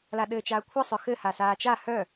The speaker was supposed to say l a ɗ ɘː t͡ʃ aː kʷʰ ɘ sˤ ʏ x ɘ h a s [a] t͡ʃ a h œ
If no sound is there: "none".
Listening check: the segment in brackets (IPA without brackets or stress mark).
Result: aː